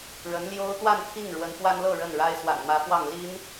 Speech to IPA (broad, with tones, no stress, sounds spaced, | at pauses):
ɻ ə˧˥ n l j o˥ ʊ̯ t̪ w a˥˧ n pʰ i˥˩ ŋ ɻ w ə˧˥ n f w a˥ n l ɤ˥˧ ɻ ə˥˩ n ɻ a˥ ɪ̯ s w a̰˨˩ n m ä˧˥ f w ɑ˥˩ ŋ l i˥ n